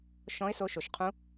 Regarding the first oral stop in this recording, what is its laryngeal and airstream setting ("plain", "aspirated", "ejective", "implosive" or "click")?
aspirated